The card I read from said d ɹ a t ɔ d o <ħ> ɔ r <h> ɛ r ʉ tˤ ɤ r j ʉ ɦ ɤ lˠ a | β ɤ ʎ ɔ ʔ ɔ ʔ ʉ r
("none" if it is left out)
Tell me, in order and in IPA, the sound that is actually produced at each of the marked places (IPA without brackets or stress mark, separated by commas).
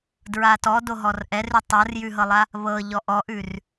ɦ, ʔ